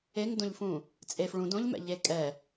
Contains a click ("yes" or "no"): no